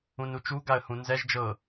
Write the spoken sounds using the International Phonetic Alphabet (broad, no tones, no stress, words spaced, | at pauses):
ũnut͡ʃu ɡaə̯hũnzɛʒ d͡ʒɤ